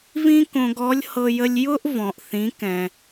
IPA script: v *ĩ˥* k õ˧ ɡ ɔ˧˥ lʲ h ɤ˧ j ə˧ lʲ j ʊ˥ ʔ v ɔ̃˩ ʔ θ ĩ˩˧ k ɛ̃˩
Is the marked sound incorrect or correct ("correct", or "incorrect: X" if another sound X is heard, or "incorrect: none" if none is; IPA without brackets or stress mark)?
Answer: correct